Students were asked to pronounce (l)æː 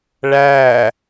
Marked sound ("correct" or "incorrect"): incorrect